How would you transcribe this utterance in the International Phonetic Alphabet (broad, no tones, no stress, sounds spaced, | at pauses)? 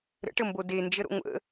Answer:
ɾ ə̰ ʈ ə m b o d e n d͡ʒ ə ɾ o̰ ŋʷ ə̰